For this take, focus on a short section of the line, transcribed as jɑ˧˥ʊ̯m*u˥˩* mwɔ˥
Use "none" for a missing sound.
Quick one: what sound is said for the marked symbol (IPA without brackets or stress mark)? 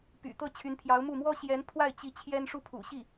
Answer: u˥˩